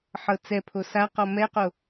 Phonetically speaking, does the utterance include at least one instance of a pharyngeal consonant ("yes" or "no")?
yes